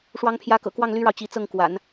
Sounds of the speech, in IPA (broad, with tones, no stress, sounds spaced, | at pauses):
ʂ w ɑ˧˥ ŋ pʰ j ä˧˥ k ɤ̰˨˩ k w ɑ˥˩ ŋ l y˥ ɻ ɑ˨ ʊ̯ t͡ɕ i˧˥ t͡s ɤ˥˩ ŋ k w a̰˨˩˦ n